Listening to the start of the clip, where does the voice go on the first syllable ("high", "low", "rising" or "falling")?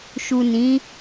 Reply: low